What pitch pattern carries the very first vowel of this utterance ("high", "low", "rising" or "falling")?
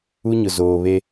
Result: high